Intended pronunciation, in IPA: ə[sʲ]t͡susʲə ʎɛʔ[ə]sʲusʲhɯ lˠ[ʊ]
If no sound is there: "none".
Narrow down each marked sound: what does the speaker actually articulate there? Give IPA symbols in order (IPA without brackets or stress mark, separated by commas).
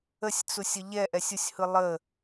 sʲ, ɛ, ə